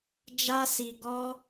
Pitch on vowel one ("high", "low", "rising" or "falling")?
high